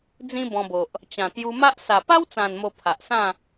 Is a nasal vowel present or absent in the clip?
present